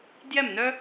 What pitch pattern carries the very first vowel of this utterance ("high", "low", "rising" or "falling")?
falling